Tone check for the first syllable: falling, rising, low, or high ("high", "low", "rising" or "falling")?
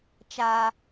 high